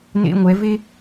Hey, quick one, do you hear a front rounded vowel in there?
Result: no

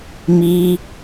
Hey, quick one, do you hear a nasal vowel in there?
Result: no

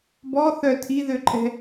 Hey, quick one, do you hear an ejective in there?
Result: yes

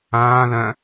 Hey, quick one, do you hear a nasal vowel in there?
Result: yes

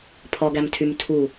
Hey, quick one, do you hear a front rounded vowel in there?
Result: yes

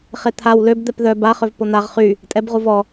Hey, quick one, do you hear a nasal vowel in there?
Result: no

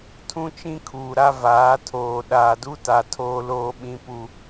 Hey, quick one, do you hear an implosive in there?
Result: yes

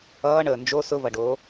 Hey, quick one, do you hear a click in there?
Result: no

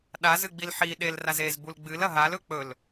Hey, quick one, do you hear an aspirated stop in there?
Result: no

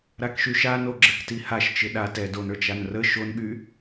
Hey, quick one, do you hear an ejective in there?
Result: no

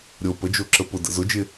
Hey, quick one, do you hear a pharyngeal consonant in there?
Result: no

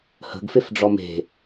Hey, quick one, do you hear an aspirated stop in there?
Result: no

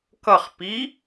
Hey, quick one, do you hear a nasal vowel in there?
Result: no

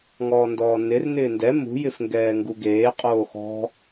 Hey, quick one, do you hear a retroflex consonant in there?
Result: no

